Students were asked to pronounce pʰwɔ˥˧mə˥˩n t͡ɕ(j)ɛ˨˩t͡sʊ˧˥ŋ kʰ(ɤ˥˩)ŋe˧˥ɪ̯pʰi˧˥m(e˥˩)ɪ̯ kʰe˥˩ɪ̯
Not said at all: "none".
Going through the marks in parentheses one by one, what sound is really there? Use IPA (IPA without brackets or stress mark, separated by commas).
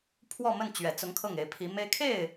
ɥ, ɤ˥˩, e˥